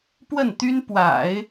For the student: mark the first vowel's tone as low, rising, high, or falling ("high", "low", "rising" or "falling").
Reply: falling